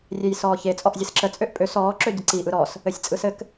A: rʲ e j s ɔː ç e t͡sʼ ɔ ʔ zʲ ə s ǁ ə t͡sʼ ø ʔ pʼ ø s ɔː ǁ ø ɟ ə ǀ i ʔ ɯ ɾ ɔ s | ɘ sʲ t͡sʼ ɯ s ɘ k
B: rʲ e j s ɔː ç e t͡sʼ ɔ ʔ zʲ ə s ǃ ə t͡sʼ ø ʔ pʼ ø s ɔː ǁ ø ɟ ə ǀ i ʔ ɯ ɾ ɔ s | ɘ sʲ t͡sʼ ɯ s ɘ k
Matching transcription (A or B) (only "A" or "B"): A